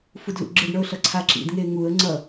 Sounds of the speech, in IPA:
fudlṵɡ͡ǁɯɖɳʌʊ̯ ɬʌǀʰaǁḭdŋe ŋuə̯ ŋ͡ǀʌ

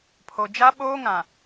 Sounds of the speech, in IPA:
pʰo˨ d͡ʒa˦ɓoː˦ŋã˨

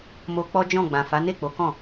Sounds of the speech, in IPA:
mo˧k͡pɔ˦d͡ʒɔ̃˦˨ ɡ͡bã˨fa˨˦ne˦˨k͡po˨˦ kɔ̃˦˨

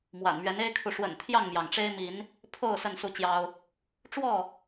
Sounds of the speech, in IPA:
mwa̰˨˩nmɥɛ˨˦ne˦ɪ̯kʰu˨ ʂwə̰˨˩n t̪ʰjɑ˥˨ŋmjɑ˩ŋʈ͡ʂe˦ɪ̯mi˨˦n | pʰo˥˨ʊ̯ sə˥˨nsu˥˨t͡ɕjɑ˦ʊ̯ | ʈ͡ʂwɔ˥˨

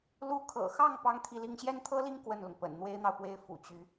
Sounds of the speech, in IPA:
lu˧˥kʰɤ̰˨˩xɑ˥˩ŋ pɑ˥ŋt̪ʰi˥˧li˥˧ŋ ɕjɛ˥˩nt̪ʰɤ˥li˥˧ŋ kwə˥˩nlʊ˩ŋ pə̰˨˩nn̪we˥ɪ̯n̪ɑ˨ʊ̯pwe˥˩ɪ̯ fṵ˨˩t͡ɕy˧˥

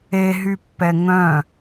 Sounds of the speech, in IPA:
eɦypːɛ ŋœ̃

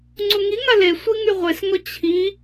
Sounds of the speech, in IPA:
ŋ͡ǀuŋiŋa le sʷiŋyʁʷesŋɔ t͡ɕʰi

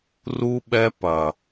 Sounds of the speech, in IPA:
ru˦ ɓɛ˦pɐ˨

